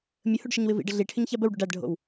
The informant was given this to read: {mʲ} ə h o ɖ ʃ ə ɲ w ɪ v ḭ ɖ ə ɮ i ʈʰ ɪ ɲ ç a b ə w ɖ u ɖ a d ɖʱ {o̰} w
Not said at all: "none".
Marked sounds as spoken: mʲ, o̰

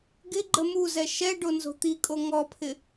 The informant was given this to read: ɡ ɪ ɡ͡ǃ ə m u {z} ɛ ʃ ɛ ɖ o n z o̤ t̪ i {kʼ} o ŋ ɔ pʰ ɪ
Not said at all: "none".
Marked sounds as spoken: z, kʼ

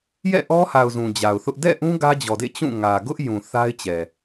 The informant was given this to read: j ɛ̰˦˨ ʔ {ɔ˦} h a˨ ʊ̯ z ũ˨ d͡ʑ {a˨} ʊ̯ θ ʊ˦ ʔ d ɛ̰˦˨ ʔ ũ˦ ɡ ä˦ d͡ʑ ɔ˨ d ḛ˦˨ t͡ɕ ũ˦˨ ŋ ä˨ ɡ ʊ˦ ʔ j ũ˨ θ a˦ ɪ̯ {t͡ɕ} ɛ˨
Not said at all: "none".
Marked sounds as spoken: ɔ˦, a˨, t͡ɕ

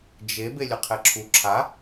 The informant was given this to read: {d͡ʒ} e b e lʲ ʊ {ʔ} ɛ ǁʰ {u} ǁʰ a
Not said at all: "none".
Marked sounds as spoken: d͡ʒ, qʰ, u

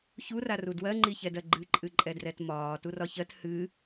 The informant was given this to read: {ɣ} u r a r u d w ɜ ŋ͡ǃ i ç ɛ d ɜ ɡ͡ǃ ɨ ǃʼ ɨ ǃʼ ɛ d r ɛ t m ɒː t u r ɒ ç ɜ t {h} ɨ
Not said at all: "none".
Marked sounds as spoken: ç, h

